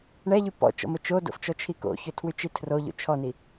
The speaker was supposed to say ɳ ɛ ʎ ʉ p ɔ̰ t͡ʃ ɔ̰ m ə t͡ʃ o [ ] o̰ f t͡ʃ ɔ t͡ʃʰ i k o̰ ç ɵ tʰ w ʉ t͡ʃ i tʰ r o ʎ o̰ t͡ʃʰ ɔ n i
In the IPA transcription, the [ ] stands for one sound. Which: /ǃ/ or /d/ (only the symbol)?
d